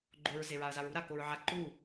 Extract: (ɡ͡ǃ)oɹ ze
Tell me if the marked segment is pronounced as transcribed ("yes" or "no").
yes